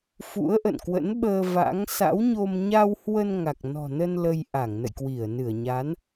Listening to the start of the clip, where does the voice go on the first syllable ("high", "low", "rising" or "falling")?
rising